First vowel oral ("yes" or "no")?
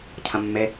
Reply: no